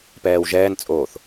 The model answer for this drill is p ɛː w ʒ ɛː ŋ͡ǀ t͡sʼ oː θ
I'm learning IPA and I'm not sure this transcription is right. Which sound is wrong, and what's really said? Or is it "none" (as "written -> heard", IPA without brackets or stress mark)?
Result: ŋ͡ǀ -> n